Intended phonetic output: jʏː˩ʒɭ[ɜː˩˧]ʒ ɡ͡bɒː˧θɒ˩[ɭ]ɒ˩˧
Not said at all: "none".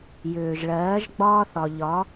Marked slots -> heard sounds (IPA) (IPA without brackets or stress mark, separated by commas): ɜː˩˧, ʎ